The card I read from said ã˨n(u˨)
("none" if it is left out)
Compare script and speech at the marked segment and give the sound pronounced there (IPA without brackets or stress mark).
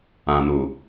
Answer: u˨